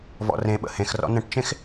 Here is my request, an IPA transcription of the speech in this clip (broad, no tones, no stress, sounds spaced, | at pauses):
v ɔ̰ r ẽ ɓ ə̰ h ẽ x r ɔ̰ n ə̃ ʈ t͡ʃ ẽ x